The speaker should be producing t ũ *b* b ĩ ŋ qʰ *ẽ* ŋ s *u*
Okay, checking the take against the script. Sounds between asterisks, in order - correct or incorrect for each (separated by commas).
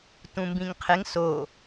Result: incorrect, incorrect, incorrect